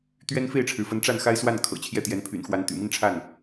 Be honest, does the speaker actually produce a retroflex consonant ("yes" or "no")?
yes